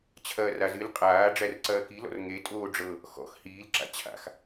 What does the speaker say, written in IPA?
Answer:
t͡ɕʰɐːrazɨl qʼaː ɖ͡ʐærǀɐːkilɔ̰r ŋe tʼoːɖ͡ʐɤ | xɔ̰x hiːlǁa̰ t͡ɕʰa̰x

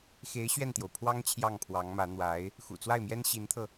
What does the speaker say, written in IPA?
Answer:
xe˧˥ɪ̯ ɕɥɛ˥˩nt̪jo˩ʊ̯pʰwɑ˥ŋ t͡ɕʰjɑ˥˩ŋpʰwɑ˧˥ŋmä˧˥ n̪wa˧˥ɪ̯ | xṵ˨˩t͡swa˥˩ɪ̯mjɛ˥n ɕi˧˥nt̪ʰɤ˧

